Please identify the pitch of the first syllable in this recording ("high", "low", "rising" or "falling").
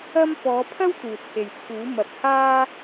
high